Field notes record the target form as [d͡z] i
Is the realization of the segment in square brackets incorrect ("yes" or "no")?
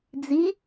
no